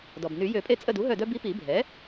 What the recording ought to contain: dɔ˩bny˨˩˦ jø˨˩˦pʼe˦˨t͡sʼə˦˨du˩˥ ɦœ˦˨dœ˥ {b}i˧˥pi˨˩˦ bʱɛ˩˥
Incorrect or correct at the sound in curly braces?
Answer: correct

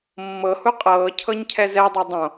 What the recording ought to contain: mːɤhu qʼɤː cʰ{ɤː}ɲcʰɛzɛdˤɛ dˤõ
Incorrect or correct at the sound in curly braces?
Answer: incorrect: ɤ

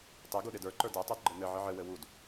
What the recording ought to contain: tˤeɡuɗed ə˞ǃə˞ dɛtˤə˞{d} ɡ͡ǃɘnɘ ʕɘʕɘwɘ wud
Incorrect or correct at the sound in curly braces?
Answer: correct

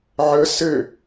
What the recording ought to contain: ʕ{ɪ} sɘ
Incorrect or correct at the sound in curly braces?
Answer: incorrect: ə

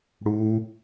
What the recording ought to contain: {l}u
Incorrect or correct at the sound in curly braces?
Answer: incorrect: ɽ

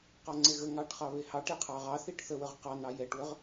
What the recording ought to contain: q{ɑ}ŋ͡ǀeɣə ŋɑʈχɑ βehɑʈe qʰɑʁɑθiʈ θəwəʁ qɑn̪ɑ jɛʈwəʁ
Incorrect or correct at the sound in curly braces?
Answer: correct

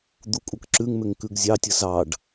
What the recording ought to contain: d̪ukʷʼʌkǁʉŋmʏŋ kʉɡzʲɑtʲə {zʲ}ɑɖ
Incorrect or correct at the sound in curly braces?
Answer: incorrect: z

